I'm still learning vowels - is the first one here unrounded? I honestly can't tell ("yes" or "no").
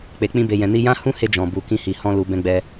yes